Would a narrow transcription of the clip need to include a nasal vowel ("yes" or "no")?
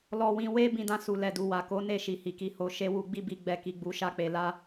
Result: yes